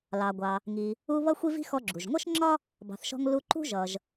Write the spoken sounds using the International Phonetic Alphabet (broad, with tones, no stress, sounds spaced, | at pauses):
l ɑ˩ ɡʷ ɑ˩ | ŋ i˩ | u˧ β ʌ˥ xʷ i˥ v i̤˥ x ɔ˧ ɡ͡ǁ u˩ ʒ ŋʷ ʌ˥ ʃ ŋ͡ǁ ɒ˥ | b ɑ̤˩ θ ʃ ɔ̤˧ ŋ l u˧ ǃ ṳ˥ ʒ ʌ˩ ʒ